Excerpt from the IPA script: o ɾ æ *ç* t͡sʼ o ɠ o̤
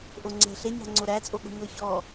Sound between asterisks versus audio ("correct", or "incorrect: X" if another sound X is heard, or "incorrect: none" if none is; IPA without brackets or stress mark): incorrect: none